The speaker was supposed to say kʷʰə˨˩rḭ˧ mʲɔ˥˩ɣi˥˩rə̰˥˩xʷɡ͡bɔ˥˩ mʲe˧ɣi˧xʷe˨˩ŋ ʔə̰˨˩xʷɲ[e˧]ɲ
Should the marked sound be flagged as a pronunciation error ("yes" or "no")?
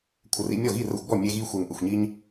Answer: yes